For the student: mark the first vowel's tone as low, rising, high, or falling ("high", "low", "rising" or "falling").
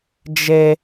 high